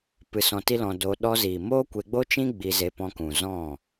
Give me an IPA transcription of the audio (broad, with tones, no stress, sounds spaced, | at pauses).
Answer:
p ɨ˧ s ɔ̃˧ t i˦ l ɔ̃˧ d o˧ ɗ ɔ˧ z iː˨ m oː˦ kʷ e˧ ɡ͡b o˦ t͡ʃ ĩ˦ ɡ͡b i˧ z e˧ p ɔ̃˧ k ũ˨ z ɔ̃˦˨